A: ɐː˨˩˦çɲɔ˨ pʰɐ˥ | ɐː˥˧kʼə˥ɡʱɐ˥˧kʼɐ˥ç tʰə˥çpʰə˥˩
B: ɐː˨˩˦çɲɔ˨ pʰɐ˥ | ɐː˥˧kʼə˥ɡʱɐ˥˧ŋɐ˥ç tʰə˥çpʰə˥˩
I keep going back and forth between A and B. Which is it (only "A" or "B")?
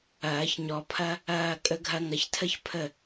B